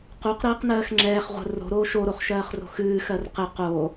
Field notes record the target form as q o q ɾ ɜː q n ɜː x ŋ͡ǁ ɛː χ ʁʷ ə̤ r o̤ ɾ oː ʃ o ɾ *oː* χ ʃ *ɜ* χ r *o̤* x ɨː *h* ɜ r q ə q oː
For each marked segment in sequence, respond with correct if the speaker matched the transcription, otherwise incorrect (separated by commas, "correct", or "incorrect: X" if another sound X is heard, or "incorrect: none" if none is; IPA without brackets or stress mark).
incorrect: o, incorrect: ɜː, correct, incorrect: x